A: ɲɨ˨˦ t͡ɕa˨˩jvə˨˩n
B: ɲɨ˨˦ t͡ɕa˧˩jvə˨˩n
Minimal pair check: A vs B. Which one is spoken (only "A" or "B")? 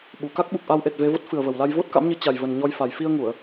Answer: A